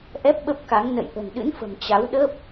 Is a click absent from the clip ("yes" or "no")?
yes